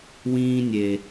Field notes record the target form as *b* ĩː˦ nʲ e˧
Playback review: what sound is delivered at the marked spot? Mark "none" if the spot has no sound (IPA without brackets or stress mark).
w